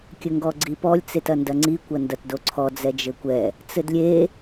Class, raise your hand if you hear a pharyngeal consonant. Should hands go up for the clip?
no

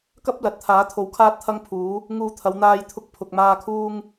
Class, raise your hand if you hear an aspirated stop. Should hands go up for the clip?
yes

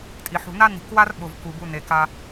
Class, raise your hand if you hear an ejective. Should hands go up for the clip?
yes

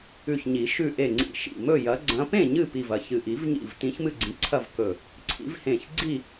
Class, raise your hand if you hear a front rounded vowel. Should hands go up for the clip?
no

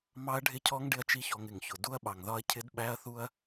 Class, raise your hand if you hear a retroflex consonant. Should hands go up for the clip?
yes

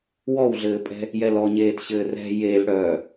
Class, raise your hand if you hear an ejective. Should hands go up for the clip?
yes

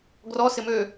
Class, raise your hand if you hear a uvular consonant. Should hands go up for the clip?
no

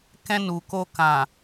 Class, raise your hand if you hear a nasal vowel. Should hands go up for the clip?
yes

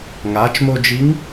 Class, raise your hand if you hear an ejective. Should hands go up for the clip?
no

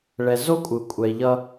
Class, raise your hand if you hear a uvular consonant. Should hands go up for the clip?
no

